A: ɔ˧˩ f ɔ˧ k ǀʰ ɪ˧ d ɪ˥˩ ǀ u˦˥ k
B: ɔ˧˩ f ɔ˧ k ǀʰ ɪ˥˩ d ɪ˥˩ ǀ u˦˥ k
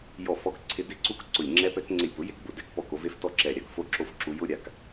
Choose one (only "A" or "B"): A